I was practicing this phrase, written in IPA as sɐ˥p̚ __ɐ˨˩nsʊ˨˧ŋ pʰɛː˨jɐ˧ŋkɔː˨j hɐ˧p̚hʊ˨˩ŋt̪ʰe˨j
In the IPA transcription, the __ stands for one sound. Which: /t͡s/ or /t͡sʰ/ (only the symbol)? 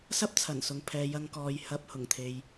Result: t͡sʰ